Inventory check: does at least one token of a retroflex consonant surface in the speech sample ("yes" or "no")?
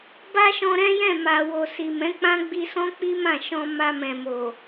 no